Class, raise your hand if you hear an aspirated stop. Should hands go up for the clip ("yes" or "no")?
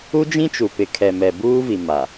yes